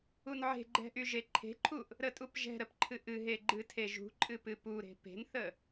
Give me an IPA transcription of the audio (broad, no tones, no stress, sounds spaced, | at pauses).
u n ʕ e̤ ɡ͡ǃ ɛ̤ ʔ y ʒ e ǃʰ e̤ ǃʰ u ʔ | ɾ ə tʼ u p ʒ ɛ̤ ɾ ə p ǃʰ ɨ ʔ ɨ ɦ e ɡ͡ǃ ɨ tʰ e ʒ ṳ ǃʼ ɨ p ɨ p u ɾ e̤ p e̤ n θ ə